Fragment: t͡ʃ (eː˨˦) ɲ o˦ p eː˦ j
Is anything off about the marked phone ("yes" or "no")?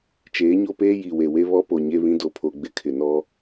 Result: no